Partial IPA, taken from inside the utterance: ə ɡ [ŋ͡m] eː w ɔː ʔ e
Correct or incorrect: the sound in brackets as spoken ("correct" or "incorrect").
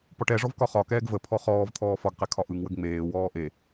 correct